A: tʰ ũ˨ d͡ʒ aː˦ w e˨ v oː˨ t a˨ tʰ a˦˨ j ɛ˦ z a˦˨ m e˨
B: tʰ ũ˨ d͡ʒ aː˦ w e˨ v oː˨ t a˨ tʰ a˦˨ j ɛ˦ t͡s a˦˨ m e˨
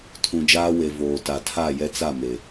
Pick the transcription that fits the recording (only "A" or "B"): B